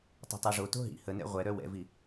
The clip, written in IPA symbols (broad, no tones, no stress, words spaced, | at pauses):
tˤo̤tˤoʐoto̤ ɦḭ hənɛ̰ ʁʷɛɾœ wɛ̰vi